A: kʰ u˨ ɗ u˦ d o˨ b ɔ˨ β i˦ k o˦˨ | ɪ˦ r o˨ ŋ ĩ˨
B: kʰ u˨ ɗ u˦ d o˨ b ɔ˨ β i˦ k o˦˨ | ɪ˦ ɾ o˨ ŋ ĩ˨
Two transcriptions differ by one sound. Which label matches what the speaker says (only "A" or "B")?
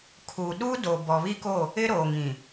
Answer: B